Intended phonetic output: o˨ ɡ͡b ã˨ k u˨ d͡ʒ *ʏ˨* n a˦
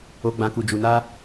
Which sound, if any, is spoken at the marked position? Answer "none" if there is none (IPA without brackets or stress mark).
u˨